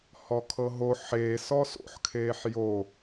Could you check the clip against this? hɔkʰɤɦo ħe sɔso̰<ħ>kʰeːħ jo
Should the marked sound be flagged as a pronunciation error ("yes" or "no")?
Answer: no